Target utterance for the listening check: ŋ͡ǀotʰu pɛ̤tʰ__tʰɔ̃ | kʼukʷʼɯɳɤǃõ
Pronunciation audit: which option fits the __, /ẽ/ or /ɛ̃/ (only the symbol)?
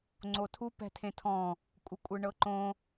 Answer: ẽ